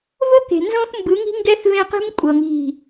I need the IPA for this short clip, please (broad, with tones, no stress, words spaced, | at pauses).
vo˦ke̤˨nzõ˦θ mbɯ˨˦ŋi̤˦ŋɡɛ˦θ vẽ˦qi̤˦m kʷʼɤ˨ŋi̤˦˨